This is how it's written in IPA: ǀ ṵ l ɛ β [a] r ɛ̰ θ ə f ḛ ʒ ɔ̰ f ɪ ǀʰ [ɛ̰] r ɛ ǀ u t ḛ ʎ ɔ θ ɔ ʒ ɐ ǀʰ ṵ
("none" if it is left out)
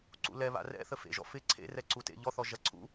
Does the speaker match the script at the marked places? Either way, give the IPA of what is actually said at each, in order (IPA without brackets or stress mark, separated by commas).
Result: a̰, ḛ